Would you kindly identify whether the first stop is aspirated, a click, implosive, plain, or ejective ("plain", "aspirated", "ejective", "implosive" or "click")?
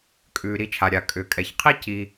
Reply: ejective